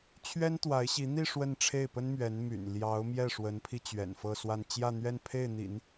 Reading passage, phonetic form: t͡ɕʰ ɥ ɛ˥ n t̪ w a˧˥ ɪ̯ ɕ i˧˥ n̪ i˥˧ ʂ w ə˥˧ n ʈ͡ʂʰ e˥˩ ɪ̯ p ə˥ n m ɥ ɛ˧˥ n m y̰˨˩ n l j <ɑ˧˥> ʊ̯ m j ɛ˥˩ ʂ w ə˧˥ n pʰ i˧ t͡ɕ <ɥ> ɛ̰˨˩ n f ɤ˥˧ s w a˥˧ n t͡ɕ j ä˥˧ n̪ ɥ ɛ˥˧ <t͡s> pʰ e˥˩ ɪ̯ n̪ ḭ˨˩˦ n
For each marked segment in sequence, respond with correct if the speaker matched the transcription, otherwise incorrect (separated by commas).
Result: correct, correct, incorrect